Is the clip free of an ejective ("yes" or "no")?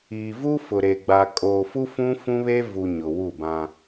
no